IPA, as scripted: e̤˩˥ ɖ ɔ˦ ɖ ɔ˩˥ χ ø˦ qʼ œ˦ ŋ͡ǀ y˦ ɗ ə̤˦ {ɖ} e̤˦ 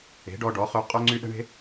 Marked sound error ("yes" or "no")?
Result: yes